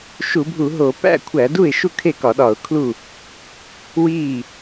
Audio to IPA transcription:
ʃ u˧˩˧ bʱ u˧˩˧ ɦ o˧˩˧ p æ̰˥˩ kʷʰ æ˧˩˧ d u˥˩ ɪ̯ ʃ u˥˩ kʰ e˥˩ k ɒ˧˩˧ ɗ ɒ˧˩˧ ʊ̯ kʰ l u˥˩ | w i˥˩

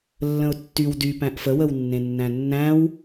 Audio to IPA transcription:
lː ə̃ ʊ̯ tː y w d y p æ̃ ʔ f ə w ə w nː ẽ nː æ̃ nː æ̃ w

